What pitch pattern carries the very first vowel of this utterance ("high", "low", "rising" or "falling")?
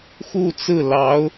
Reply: falling